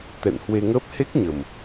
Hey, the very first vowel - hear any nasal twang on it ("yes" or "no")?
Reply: no